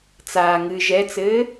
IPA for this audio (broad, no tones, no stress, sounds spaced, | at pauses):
t͡s aː ŋ ɨ ʒ ɛ t͡s ɘː